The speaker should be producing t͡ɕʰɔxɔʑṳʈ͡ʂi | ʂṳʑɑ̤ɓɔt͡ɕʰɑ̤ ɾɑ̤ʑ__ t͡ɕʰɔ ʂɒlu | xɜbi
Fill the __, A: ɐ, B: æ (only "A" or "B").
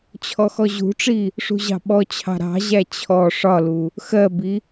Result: B